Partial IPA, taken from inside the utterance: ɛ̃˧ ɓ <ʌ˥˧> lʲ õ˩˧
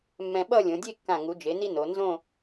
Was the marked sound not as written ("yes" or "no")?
no